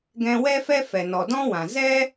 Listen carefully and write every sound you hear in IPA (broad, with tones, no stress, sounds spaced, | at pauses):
ɡ ɛ̃˧ w ɛ˦ f ɛ˦ f ɛ˨ n ɔ˨ d ɔ̃˦ w ã˨ z ɛ˦